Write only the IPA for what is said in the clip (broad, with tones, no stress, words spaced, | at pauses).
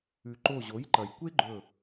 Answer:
ʉ˩ǃo˧˩ ʑo˩˥jǃɐ˩jkʷe˥ɡ͡ǃɵ˧˩